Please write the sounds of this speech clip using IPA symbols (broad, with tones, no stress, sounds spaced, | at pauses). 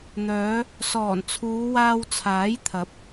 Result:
n̪ œː˨˧ | s ɔː˨˩ n t͡sʰ uː˨˧ w aː˧ w t͡sʰ aː˨˥ j t̪ʰ ɐ˨˥ p̚